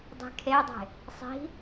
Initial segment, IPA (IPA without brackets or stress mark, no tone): dˤ